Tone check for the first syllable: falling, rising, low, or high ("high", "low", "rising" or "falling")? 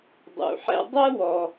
low